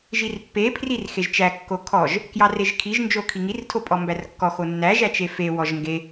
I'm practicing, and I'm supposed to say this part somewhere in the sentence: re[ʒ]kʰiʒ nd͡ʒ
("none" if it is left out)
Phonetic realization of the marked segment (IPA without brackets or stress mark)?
ʒ